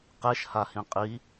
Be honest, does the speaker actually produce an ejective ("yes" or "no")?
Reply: yes